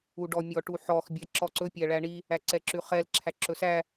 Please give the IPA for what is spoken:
u ɖ ɔ mʲ ɔ ʈ u ħ ɔ x bʲ æ ǁ ɔ ǀ ɵ pʲ æ ɭ æ ɳ i | æ ǀ ɛ ǁ ʉ χ ɛ l ǁʰ æ ǁ ɵ s æ

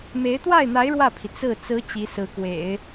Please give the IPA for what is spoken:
m e˧˥ ɪ̯ t̪ w a˥˩ ɪ̯ n̪ a˧˥ ɪ̯ ɻ w ä˥˩ pʰ i˩ t͡s ɹ̩˥˩ t͡s ɹ̩˧˥ t͡ɕ i˧˥ s ɹ̩˧˥ k w ḛ˨˩˦ ɪ̯

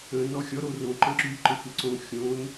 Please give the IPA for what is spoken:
ə̃ n ɔ xʲ ɔ ɾ o r õ ǃ ə̃ ǁ y ǃ ə xʷ ə ǀ õ xʲ õ n

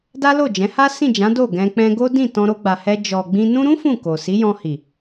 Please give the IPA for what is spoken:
d a˦ l o˦˨ d͡ʒ ɛ̃˨˦ h a˦ s ĩ˦˨ d͡ʒ ã˨˦ d o˦˨ ɡ ɛ̃˧ k͡p ɛ̃˧ ɡ o˦ d ĩ˦˨ t ɔ̃˧ ɾ o˧ ɡ͡b a˨ h ɛ˧ d͡ʒ ɔ˨ ɡ͡b ĩ˧ n ũ˧ ɾ ũ˦ f ũ˦˨ k o˨ s i˨˦ j ɔ̃˧ h i˨

